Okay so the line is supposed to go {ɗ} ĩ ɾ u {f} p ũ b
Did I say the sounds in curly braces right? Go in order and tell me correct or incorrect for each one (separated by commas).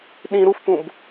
correct, correct